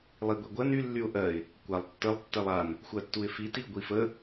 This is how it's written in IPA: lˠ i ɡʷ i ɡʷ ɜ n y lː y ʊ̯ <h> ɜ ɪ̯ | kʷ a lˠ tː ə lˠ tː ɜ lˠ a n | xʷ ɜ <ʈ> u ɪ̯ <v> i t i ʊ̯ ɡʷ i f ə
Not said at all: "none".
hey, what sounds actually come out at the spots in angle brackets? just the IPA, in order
ʔ, tː, f

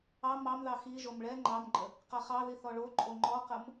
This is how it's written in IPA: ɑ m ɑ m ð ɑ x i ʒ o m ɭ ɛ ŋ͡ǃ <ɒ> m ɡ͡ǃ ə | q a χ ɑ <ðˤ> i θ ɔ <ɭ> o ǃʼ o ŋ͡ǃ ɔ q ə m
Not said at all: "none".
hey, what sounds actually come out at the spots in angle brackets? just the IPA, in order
ɑ, ð, ɭ

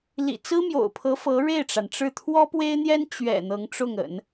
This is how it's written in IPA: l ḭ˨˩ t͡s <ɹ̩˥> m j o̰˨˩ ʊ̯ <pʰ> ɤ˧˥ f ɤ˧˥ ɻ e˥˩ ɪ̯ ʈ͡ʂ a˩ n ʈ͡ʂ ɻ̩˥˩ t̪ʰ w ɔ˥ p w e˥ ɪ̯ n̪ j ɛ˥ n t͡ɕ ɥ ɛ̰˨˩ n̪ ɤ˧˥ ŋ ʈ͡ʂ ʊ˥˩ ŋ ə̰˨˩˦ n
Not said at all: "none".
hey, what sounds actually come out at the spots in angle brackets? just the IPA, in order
ɹ̩˥, pʰ

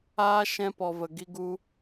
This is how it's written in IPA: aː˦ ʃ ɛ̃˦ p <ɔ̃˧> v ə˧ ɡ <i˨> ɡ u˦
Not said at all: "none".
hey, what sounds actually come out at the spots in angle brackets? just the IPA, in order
ɔ˧, i˦

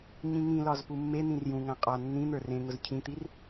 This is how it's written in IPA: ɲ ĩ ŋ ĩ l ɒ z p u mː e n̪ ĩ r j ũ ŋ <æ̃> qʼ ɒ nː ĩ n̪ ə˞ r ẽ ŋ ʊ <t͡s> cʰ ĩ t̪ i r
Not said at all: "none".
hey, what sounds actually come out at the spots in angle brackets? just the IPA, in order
æ̃, z

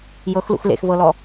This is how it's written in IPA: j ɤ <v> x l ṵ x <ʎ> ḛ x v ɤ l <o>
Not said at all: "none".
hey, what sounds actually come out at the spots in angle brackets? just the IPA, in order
none, l, ɔ

